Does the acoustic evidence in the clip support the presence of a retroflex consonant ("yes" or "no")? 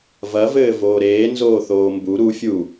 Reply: no